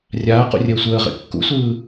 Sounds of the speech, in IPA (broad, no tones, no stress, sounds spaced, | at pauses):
rʲ aː q ṵ rʲ əː sʷ əː ʁ ḛ kː ṵ sʷ ɯː